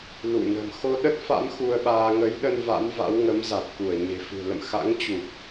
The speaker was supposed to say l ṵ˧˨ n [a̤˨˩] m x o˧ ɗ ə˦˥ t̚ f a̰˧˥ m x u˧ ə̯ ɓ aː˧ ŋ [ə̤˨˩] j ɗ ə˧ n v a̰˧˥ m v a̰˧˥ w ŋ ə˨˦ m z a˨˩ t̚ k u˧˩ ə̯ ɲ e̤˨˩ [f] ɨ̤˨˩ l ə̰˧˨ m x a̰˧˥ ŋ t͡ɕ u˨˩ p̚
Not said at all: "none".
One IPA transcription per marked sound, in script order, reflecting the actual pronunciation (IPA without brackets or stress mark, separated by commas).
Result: ə̤˨˩, ə˨˦, f